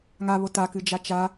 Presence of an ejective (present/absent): absent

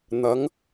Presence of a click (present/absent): absent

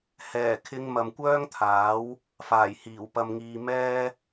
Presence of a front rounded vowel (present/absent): present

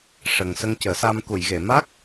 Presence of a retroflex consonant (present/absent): present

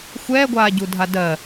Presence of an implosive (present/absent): absent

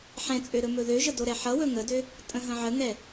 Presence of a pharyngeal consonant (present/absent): present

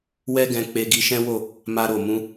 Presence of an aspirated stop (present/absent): absent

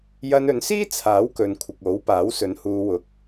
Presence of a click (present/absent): absent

